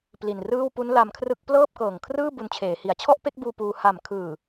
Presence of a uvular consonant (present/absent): absent